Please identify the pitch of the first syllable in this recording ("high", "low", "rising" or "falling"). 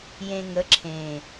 low